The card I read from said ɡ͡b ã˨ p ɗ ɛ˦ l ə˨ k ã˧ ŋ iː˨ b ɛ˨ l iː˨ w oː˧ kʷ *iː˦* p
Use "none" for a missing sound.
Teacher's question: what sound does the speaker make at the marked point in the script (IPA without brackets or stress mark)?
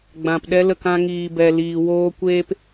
eː˦